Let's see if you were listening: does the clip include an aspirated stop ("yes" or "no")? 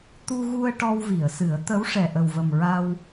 no